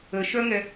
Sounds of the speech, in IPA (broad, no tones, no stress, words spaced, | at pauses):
əʃœŋɛ